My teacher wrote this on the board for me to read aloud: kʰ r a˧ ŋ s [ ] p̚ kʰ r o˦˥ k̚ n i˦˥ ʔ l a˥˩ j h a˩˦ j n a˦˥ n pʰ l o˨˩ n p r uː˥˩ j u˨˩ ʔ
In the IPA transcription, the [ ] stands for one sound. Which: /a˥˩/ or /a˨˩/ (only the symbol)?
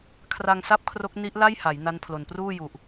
a˥˩